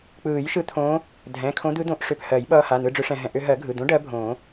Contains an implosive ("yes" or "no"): yes